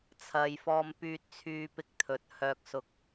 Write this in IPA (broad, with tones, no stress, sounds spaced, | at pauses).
t͡sʰ ɐ˨ j f ɔː˧ m p yː˧ t̚ t͡sʰ yː˧ p ɪ˧ k̚ t̪ʰ ɵ˨˥ t̚ h œː˧ k̚ s ʊ˧ k̚